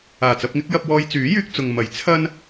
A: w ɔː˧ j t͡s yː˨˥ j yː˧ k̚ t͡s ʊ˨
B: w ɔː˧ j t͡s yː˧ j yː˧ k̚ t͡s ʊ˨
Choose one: A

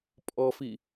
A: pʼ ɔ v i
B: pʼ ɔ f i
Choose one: B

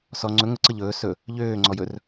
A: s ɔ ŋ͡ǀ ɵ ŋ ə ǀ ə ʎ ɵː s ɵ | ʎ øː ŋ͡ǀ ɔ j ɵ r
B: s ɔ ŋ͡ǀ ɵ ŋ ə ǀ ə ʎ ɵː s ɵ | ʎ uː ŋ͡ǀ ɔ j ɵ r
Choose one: A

